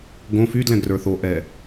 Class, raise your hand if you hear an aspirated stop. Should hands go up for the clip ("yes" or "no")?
no